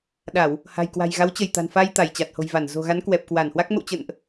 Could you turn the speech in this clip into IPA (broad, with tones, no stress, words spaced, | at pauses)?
ɗa˧˩˨w | ha̤˨˩jkwa̤˨˩j ɣa˨˦wt͡ɕə˧˩jt̪a̤˨˩nfa˧j t̪a˧˩jt͡ɕa˨˩t̚ho̤˨˩jva˧˩n zo̤˨˩ɣa˨˦n kwɛ˨˩p̚kwa˧˩nhwa˦˥k̚ mə̰˧˨wt͡ɕə̰˧˨nʔ